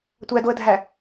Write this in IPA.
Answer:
tʷ æ d o ə̯ dʱ æ

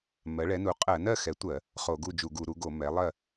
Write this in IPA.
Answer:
m ɜ˩˥ ɭ ɛ˩˥ n u˩˥ qʼ ɜ˧˩˧ n ɜ˥˨ x ɛ˩˥ tʷ ɜ˧˩˧ | χ o˧˩˧ ɡ u˥˨ d͡ʒ u˧˩˧ ɡ u˧˩˧ ɾ u˩˥ ɡ o˧˩˧ m ɛ˩˥ lˠ ɜ˥˨

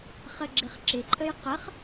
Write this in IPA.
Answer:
χ ə ɡ͡ǁ ɪ χ ǁ ɪ ǃʼ ə j q ə χ

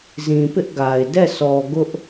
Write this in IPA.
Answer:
z ĩ˨ p ɪ˦ ʔ ɡ a˨ ɪ̯ d ɛ˦˨ sʰ ɔ˨ ɡ ʊ˦ ʔ

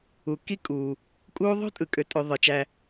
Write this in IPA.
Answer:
u˩ k i˥ kʼ uː˩ | kʼ uː˦ ðˤ o̤˥ tʼ ɯ˩ kʼ ø˨ tʼ ø˨ ðˤ ɯ˩ t͡ʃ æ˨

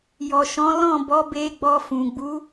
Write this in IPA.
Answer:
j ɔ˨ ʃ ɔ̃˨˦ l ɔ̃˦˨ b ɔ˨˦ b e˧ ɡ͡b ɔ˧ f ũ˨ ɡ͡b u˨˦

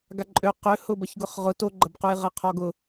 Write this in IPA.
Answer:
ɡ a ǃʼ ø q ʏ h ʊ b ɐ ç ɡ ʊ χ ʁ ʊ t o ɡ͡ǃ ɐ b q u j ʁ ɐ qʰ ɔ ɡ ʊ

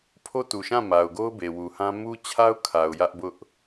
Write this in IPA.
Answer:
pʰ o˦ t u˨ ʃ ã˦˨ m a˨ ʊ̯ ɡ o˦ ʊ̯ b e˨ w u˨ h ã˦ m u˦ t͡ɕʰ a˦ ʊ̯ kʰ a˨ ʊ̯ j ä˦ ʔ b ʊ˦ ʔ

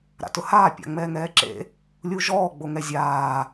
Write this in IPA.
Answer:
ɾ a̰ t ʊ h aː pʲ a̰ ŋ͡m ɛː ŋ ɛː ǁ ḛ | lʲ u ʒ ɔː ɡ͡b o ŋ ɛ zʲ aː

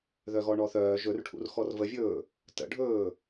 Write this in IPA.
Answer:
ð œ ɣ ɔ ɳ ɔ θ œː ʒ ɵ r ʈʰ ṵ r x ɔ r v ə vʲ ɵː | t ə̰ ɖʱ ɵː

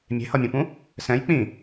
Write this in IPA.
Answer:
mʲ e̤ h ʌ mʲ ũ p ũ | s ɛ̃ j k͡p ĩ

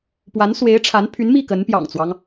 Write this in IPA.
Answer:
p w a˧˥ n s w e˧˥ ɪ̯ ʈ͡ʂʰ a˧˥ n pʰ y˧˥ n m i˥˩ k ə˧˥ n p j ɑ̰˨˩ ŋ t͡s w ɑ˦ ŋ

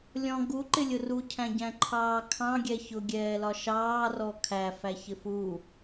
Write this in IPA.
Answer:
lʲ ɔ̃ ɡ u ǃ ɪ lʲ ʊ r u cʰ æ̃ ɟ æ̃ ǃʰ ɑː kʰ ɑ̃ ɡʲ ɛ ç ʊ ɡʲ ɛː l ɒ ʃ ɑː r ɔ kʰ æ f æ ç ɪ f u

